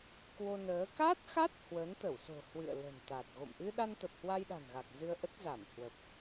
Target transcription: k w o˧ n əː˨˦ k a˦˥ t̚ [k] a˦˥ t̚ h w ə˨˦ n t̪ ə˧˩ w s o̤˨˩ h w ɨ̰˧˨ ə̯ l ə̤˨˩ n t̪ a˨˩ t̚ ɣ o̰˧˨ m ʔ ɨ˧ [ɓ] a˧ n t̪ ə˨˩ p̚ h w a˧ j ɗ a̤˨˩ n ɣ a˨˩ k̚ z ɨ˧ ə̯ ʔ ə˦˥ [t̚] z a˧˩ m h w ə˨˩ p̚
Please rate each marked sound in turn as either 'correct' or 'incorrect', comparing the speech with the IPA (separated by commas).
incorrect, incorrect, correct